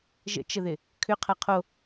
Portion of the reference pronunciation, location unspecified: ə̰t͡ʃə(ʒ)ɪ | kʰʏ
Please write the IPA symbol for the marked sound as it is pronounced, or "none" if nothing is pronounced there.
ð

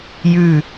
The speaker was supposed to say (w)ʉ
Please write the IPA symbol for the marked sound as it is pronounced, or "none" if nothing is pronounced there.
j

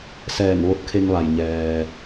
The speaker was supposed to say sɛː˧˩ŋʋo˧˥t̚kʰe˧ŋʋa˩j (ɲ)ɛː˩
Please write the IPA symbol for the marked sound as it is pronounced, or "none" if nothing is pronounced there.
ɲ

